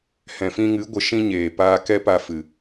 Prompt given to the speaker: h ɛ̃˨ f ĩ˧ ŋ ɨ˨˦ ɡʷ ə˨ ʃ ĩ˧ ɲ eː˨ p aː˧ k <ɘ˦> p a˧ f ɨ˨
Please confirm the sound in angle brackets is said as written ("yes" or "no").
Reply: no